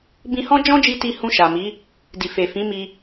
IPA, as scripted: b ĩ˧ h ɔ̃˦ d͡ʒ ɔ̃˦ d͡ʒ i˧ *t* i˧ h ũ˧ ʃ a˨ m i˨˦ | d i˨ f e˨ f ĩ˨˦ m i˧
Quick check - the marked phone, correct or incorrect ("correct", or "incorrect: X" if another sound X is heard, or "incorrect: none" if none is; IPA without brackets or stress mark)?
correct